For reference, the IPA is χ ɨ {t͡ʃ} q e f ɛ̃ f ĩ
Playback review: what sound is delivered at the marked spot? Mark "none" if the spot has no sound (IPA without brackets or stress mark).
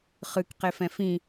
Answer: k